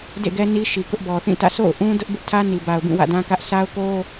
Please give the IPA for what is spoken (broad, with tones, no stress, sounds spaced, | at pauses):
d ḛ˦˨ ɡ ɛ˦ n i˦ ʃ i˨ k ʊ˦ ʔ b ɔ˨ θ ĩ˦˨ t ä̰˦˨ sʰ o̰˦˨ ʊ̯ ʔ ũ˦ d ʊ˦ ʔ b ɪ˦ ʔ tʰ ä˦ n i˨ b a˨ ʊ̯ b ĩ˦˨ w ä̰˦˨ d ã˦ k ä˦ ʔ s a˦ ʊ̯ k o˦